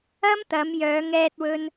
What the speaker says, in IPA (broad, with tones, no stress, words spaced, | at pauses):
ɐ˥mt̪ɐ˨˧mjœː˨˧ŋ ɛː˥t̚wɵ˥n